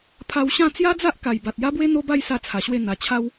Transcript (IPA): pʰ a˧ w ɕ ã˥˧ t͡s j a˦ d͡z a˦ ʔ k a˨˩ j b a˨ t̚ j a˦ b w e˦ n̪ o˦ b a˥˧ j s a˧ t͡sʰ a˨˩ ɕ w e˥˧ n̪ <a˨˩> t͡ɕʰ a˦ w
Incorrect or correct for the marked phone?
correct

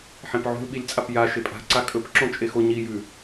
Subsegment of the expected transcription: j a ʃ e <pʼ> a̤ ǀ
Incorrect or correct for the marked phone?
correct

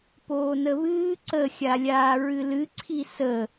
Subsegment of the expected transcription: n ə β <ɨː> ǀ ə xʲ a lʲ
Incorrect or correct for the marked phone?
correct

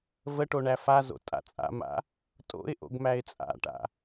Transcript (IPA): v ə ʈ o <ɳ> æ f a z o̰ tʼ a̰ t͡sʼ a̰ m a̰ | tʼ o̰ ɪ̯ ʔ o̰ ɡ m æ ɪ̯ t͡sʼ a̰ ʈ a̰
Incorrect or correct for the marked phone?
correct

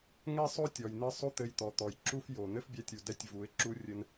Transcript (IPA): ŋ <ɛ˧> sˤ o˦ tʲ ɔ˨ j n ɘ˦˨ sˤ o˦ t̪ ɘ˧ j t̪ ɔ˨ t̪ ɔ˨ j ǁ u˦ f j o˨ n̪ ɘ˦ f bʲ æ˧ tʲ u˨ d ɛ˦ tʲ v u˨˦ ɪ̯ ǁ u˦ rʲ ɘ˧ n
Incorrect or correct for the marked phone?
incorrect: ɛ˦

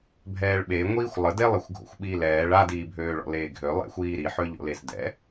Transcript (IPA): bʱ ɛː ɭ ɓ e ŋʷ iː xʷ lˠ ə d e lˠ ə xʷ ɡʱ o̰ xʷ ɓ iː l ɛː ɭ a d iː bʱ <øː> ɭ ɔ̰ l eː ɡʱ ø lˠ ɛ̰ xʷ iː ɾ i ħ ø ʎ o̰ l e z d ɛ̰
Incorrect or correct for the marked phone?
correct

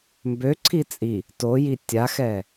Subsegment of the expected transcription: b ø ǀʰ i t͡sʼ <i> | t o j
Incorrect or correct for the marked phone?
correct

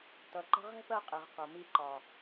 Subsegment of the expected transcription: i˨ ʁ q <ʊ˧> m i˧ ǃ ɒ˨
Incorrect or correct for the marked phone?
incorrect: ʊ˨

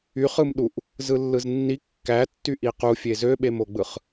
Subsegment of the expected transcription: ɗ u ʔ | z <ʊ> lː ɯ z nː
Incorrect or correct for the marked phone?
incorrect: ɯ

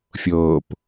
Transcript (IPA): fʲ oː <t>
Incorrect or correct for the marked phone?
incorrect: p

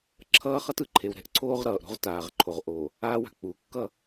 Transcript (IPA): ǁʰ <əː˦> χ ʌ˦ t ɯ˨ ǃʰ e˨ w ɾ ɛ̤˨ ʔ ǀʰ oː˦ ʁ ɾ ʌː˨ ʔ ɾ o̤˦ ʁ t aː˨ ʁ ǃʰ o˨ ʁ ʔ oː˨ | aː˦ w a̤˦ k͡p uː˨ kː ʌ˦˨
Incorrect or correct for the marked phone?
incorrect: ʌː˦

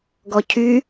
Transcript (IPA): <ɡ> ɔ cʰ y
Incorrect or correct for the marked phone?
correct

